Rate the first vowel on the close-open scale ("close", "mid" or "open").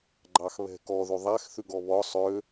open